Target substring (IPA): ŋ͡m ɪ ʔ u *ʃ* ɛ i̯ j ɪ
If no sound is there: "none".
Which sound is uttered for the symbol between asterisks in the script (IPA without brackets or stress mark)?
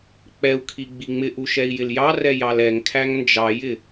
ʃ